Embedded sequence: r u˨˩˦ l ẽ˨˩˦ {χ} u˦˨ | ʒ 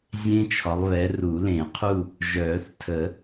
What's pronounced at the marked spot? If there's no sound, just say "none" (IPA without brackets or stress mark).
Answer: qʰ